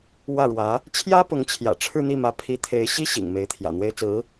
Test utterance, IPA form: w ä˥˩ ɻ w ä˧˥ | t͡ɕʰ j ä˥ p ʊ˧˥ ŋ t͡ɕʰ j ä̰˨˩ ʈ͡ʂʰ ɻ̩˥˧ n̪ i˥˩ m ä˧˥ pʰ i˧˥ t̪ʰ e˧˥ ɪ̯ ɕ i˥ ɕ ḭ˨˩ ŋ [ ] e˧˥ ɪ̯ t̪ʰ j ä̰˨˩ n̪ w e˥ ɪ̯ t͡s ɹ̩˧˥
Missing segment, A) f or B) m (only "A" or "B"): B